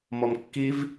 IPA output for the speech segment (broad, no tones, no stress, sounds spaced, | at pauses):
m ɔ m kː i v